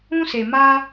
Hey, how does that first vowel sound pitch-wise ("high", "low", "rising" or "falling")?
high